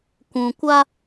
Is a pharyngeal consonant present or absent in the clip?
absent